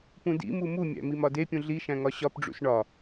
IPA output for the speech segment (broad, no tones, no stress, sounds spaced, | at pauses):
p ũ d ḭ m u m u mʲ æ̰ m i m ɒ d e pʲ ũ ɮ i ʃ æ̃ ŋ ɒ ɕ ɒ p ɖ͡ʐ ṵ s ɳ ɒ